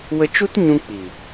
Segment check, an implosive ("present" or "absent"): absent